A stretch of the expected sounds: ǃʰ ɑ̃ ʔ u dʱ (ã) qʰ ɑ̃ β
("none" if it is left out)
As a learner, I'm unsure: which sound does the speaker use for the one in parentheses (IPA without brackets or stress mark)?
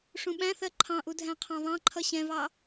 æ̃